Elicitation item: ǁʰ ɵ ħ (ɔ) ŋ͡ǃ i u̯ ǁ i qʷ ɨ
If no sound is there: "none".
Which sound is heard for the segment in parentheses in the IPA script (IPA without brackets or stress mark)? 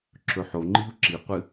o